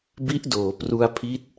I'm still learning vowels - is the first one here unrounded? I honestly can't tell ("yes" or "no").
yes